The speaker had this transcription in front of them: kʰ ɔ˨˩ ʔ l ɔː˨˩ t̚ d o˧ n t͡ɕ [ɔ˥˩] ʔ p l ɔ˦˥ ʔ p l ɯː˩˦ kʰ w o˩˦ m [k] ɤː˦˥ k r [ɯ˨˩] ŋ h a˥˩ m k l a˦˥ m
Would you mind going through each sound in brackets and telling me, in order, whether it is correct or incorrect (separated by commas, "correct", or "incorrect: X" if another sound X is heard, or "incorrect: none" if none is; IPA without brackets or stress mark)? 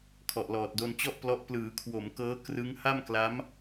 correct, correct, incorrect: ɯ˦˥